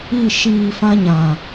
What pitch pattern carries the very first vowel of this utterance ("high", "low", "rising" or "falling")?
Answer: falling